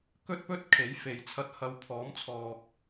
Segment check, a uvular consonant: absent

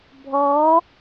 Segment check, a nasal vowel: absent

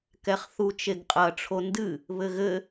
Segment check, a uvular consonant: present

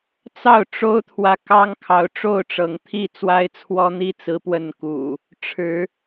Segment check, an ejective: absent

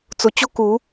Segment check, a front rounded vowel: absent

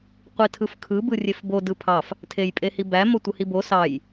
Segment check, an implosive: absent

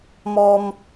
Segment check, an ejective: absent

